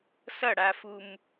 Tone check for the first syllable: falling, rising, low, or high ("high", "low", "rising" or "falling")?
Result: falling